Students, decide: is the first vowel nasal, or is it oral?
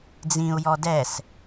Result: nasal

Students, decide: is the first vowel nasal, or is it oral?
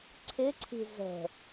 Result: oral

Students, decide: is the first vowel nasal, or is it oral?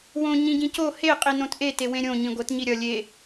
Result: nasal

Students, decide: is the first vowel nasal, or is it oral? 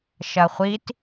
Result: oral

